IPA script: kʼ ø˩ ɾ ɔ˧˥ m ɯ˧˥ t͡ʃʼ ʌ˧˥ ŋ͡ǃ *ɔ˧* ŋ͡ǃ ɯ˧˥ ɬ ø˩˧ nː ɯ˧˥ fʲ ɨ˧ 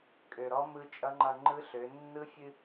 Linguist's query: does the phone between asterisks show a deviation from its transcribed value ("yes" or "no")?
yes